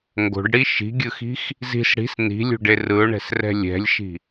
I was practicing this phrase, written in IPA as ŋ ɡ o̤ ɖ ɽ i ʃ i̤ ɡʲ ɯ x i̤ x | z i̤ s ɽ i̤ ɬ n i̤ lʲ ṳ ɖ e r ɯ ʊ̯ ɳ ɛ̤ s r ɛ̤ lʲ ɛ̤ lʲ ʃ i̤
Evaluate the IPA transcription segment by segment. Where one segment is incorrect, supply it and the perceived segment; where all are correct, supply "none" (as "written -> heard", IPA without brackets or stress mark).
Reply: ɬ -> s